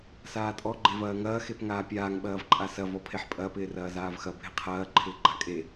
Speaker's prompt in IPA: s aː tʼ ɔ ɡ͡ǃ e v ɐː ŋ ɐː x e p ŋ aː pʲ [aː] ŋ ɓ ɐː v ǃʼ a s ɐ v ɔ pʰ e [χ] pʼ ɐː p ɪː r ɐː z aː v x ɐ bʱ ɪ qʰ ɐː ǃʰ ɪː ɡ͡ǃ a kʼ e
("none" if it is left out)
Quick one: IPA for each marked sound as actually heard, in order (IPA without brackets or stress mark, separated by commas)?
aː, ħ